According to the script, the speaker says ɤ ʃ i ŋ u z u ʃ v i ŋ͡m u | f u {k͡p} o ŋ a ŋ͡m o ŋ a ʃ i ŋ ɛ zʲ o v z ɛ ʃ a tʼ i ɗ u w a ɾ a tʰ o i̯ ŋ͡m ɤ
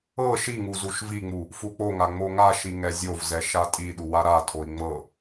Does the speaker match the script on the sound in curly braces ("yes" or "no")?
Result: yes